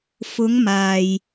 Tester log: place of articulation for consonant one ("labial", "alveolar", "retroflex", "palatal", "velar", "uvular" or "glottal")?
labial